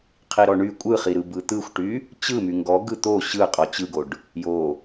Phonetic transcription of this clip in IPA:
qʰ i ɾ ɔ ɳ y kʷʼ ɯ χ i ɾ ɯ b ɯ t̪ ɯ xʷ ʈ y | t͡ɕ ɯ m y ŋ ɡ ɔ ɡ ɯ t̪ o ɕ ɯ qʼ ɔ t͡ɕ ɯ ɡ o ɖ | j o

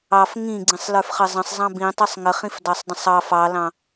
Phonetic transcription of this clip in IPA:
ɑ f ŋ ĩ ɡ͡ǀ ĩ sˤ l ə˞ f χ ə zˤ ə̃ sˤ zˤ ɑ̃ b ĩ tˤ ə˞ sˤ ŋ ə χ ĩ f d ɑ sˤ dˤ ə̃ sˤ ɑ f ɑ l ɑ̃

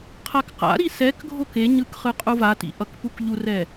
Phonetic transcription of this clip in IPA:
qʰ a k q a̰ ɾ i s ɛ k ɡʱ o k e ɲ ɯ k χ ɯ qʼ u v a t ḭ ʔ ʌ k p u k ʎ u r ɛ

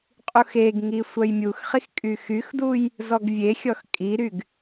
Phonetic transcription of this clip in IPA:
qʼ u x e ɡ ŋ i sʷ œ j mʲ u x χ i x kʼ y x y x d u j | z ɔ ɡ vʲ e xʲ ɔ x kʼ i ɾ y ɡ

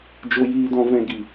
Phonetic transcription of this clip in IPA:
d͡ʒ o˧ j iː˧ d ɔ̃˧ v ɛ̃˧ ɡ i˨

